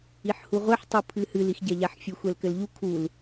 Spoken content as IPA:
i ħ h u ʁʷ ɛ ħ tˤ u pʰ ɨ h ɨ l i x ɟ ɛ ʎ a ħ fʲ ɨ xʷ ɛ l k ɘ l ʎ u kʰ u l

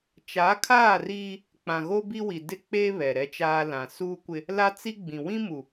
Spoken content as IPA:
t͡ʃ a˨˦ kʰ aː˦˨ r iː˦ | k͡p ã˨ ɣ o˦ b i˦ w i˨ d ɪ˦ k͡p eː˦ β ɛ˨ ɾ ɛ˦ t͡ʃ aː˦ l ã˨ s uː˦ kʷ ɪ˦ | l a˦ t͡s i˦ ɡ͡b ĩ˨ w ĩ˦ m u˨

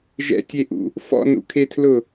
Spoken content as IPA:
ʒ ɛ̰ tʲ e ʔ ṵ | f ɔ̰ n ṵ kʰ e tʰ l ʊ

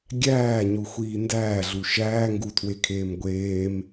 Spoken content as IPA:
ɡʲ æː ɲ u xʷ iː n d æː ɮ u ʃ æː ŋ ɡ u tʰ w e kʰ eː m ɡʷ eː m

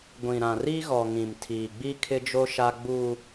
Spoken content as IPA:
ɡʷ ĩ˨ ɾ ã˨ r i˦ ɣ ɔ˨ ŋ ĩ˨ m tʰ iː˨ ɡ͡b i˦ kʰ ɪ˦ d͡ʒ o˦ ʃ a˦ ɡ͡b uː˦

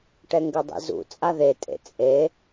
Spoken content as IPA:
ʈ ɛ ŋ ɡ ɘ dˤ ḭ z ṵ t͡sʼ a ð e tʼ ḛ t͡sʼ e

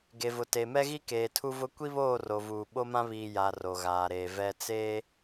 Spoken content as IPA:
ɡ e˨ v ʊ˨ t e˨ m ɛ˦ ɣ i˦ k eː˨ tʰ u˦ v ʊ˦ kʷ i˦ β oː˦˨ r o˨ v uː˨ ɓ o˦ m ã˦ β iː˨ j a˨ r o˨ ɣ aː˨ ɾ eː˨ v ɛ˨ t͡s eː˦

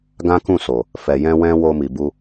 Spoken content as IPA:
ɡ ã˦ k ũ˦˨ s o˨ | f ɛ˨ j ɛ̃˧ w ɛ̃˧ w o˧ m i˨ b u˧

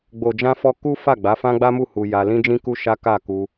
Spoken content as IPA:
ɡ͡b o˨ d͡ʒ ã˧ f ɔ˧ k u˦ f a˦˨ ɡ͡b a˨˦ f ã˦ ɡ͡b a˦ m u˦˨ h u˧ j a˧ l ĩ˦ d͡ʒ ĩ˦ k u˦ ʃ a˦ k a˦˨ k u˧

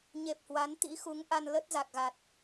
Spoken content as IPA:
ɲ e˨˩ p̚ h w a˨˦ n t̪ ḭ˧˥ x u˨˦ ŋ ʔ a˧ n l ə˦˥ t̚ z a˨˩ k̚ ɣ a˨˩ t̚

